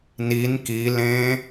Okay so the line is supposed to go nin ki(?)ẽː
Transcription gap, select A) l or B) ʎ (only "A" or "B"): A